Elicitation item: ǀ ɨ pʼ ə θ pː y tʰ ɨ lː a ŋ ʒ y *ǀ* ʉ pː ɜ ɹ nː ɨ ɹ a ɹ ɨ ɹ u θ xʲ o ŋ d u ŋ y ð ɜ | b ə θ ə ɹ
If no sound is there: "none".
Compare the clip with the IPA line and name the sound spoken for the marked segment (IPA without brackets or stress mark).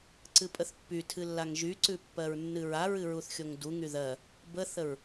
ǀ